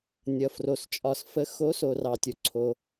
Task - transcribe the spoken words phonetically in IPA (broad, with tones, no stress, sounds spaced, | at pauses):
nʲ ʌ˩ f r o˩ s t͡ʃʼ ɒ˩ s f ə˨˦ x o˨˦ s o˩ r ɑ˩ tʲ o˩ ǀʰ o˩